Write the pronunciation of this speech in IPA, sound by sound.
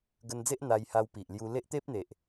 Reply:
ɡ ə˧ n d͡z e˦ ʔ n̪ a˧ j h a˧ w p i˨ ʔ l j u˧ l e˦ ʔ t̪ e˦ p̚ n̪ e˨ ʔ

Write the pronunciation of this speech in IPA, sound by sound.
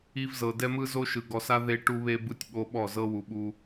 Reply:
i˦ v z ɤ˨ d ɛ˦ m ɯ˦ z o˦ ʃ ɯ˨ ɡ ɔ˨ s a˦ ð e˦ ʈ u˦ β e˦ b ɯ˦ tʲ ɓ o˦ ɓ ɔ˦˨ z ɤ˦ w u˨ ɓ u˦

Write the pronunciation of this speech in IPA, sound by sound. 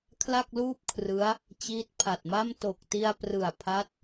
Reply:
kʰ l a˥˩ k̚ l uː˥˩ p̚ kʰ r ɯ˦˥ a̯ | t͡ɕ iː˦˥ t̚ pʰ a˨˩ t̚ m a˥˩ m t o˨˩ k̚ t i˧ a̯ p r ɯ˨˩ a̯ pʰ a˦˥ t̚

